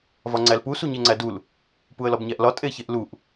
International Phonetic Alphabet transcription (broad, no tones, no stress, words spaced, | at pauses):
vɒŋ͡ǀælpu suɲeŋ͡ǀædul | puə̯lɒbɲæʔlɒ tʼeçeʔluʔ